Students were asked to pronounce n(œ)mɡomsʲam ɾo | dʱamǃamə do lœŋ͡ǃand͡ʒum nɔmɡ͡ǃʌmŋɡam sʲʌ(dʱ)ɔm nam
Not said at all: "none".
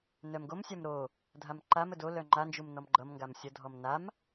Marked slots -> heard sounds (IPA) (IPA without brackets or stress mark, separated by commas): œ, dʱ